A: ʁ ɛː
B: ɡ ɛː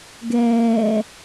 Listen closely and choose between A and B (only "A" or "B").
B